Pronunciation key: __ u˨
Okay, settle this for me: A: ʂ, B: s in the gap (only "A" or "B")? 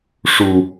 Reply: A